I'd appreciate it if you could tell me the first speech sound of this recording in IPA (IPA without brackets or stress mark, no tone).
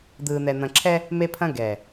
d̪